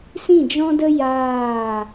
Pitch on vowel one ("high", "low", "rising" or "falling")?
falling